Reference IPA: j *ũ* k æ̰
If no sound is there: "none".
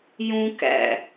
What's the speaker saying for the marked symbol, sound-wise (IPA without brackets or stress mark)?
ũ